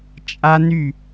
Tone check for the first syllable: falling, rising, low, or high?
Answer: high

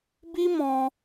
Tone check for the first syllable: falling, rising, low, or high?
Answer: high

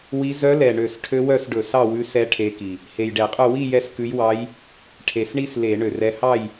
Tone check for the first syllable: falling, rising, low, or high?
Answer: rising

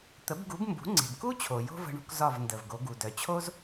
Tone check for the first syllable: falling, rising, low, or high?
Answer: rising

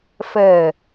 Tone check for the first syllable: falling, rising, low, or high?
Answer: low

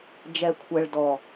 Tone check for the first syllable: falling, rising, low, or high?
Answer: low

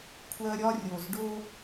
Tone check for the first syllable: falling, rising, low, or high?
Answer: high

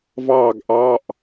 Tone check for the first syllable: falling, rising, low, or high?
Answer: falling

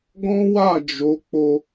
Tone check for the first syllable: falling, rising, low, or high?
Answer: high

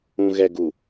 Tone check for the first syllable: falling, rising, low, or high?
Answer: low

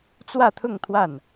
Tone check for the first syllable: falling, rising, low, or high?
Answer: falling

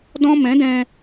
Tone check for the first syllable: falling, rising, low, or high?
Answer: high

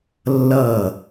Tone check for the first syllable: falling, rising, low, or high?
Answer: falling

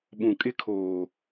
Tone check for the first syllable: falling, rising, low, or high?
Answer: low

